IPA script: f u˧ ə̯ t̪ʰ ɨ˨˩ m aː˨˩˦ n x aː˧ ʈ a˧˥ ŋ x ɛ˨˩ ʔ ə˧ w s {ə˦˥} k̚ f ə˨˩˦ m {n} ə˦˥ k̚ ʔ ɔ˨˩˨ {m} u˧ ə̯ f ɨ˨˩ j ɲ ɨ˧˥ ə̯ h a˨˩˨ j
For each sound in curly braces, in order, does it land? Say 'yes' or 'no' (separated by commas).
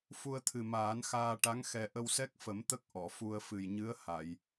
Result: no, no, no